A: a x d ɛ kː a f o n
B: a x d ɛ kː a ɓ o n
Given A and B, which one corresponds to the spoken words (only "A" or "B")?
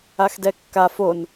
A